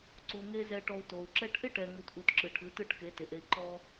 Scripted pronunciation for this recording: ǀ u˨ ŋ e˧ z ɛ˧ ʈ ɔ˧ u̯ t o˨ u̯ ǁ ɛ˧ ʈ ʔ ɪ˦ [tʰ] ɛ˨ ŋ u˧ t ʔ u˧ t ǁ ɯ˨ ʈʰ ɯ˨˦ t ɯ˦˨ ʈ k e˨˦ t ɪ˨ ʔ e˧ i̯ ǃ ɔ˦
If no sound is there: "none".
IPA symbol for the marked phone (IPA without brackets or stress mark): ʈ